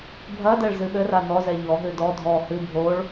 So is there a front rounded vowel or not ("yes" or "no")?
no